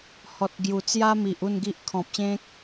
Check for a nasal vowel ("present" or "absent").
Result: present